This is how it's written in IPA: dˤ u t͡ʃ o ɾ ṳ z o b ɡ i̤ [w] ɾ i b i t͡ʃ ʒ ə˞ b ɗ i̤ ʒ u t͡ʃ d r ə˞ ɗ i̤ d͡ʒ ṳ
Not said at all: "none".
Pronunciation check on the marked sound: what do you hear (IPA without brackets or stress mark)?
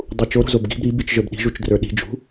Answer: b